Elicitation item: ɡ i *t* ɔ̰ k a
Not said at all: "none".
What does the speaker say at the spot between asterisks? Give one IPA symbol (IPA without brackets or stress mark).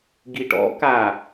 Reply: ʈ